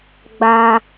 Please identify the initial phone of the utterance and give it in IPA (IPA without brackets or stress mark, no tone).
ɡ͡b